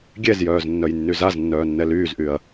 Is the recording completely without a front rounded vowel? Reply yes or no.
no